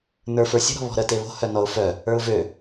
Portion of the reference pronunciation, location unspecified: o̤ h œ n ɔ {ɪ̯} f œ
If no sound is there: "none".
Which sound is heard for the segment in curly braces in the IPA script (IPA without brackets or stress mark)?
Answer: ʊ̯